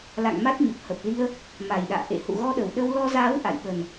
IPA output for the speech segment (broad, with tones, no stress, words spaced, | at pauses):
la̰˧˨ŋ ma˦˥t̚ɲə˨˩p̚ hə˨˩p̚li˧ə̯ | ma˨˩jɗa̰ː˧˨ ʔḛ˧˨ hṵ˧˨ɣɔ˧ɗə˨˩w ɗə˧wlɔ˧zaː˨˦w ʔa̰˧˨j ɓə˨˩n